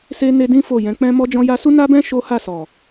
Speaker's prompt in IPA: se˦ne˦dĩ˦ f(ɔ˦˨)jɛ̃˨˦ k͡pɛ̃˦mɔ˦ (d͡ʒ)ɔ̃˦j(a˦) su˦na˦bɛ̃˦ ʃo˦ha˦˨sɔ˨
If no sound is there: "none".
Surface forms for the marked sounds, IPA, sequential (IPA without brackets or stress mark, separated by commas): o˦˨, d͡ʒ, a˦